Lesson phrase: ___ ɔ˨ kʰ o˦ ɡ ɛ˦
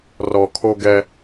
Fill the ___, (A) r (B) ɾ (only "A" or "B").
A